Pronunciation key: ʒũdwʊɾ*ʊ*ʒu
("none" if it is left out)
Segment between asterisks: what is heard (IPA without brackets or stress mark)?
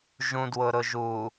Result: ʊ